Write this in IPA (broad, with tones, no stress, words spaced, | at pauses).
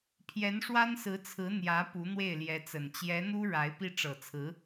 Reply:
pʰjɛ˧˥nʂwa˥nsɹ̩˧˥t͡sʰɹ̩˧˥ n̪jä˧˥ pu˧˥ n̪we˥˩ɪ̯ljɛ˧˥t͡sə˨˩n t͡ɕjɛ˧˥n̪u˥ ɻa˧˥ɪ̯pi˥˩ ʈ͡ʂɤ˨˩t͡sʰɹ̩˧˥